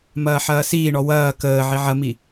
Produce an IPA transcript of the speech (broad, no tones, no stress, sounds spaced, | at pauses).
m ɐː ħ ɐː s iː ɳ ɔ w ɐː k əː ʕ i ʕ ɐ m i